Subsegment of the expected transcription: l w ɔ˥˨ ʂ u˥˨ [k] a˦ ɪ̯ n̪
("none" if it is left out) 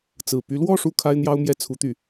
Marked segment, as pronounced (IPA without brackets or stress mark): kʰ